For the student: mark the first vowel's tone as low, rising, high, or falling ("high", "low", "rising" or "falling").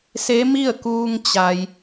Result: rising